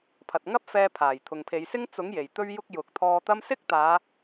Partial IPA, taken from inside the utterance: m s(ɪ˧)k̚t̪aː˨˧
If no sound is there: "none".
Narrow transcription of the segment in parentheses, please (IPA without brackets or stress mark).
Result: ɪ˥